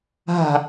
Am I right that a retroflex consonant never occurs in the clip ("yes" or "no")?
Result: yes